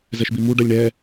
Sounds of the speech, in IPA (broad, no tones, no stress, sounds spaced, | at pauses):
z ɛ ʃ b i m u ɖ ɜ lʲ ɳ ɛ